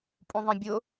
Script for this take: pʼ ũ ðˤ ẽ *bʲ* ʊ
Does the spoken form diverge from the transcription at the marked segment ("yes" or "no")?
no